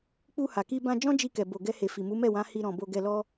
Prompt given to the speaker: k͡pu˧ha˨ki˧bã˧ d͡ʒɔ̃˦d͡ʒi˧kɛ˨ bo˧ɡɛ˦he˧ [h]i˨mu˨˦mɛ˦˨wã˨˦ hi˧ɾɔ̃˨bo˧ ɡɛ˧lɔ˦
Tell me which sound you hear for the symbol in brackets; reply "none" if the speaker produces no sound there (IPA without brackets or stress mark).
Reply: f